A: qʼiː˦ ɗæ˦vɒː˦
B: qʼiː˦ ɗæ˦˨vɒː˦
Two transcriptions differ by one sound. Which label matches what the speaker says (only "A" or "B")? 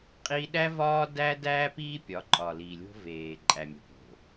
A